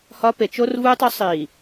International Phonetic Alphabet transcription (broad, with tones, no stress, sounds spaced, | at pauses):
h ɒ˦ p e˨ t͡ʃ o˦ r v uː˦ tˤ o˦ sˤ i˨